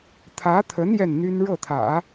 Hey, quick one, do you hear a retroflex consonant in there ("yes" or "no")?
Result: yes